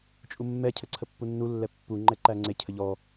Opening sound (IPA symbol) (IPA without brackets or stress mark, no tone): t͡ʃʼ